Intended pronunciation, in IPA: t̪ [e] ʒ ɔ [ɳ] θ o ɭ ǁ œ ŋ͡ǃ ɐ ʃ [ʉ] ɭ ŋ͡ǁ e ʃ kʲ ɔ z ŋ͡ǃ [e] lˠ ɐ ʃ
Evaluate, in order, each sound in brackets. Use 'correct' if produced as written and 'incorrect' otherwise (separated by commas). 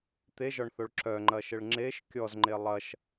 correct, correct, incorrect, correct